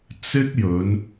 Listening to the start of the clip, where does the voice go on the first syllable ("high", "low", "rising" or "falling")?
high